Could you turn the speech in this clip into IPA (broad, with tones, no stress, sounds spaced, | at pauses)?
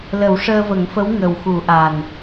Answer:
l ə˨˩˦ w ʂ əː˧ v ə˨˩˦ ŋ f ə˧˥ w ŋ ə˨˩ w x u˨˩˦ ʔ a˨˩ n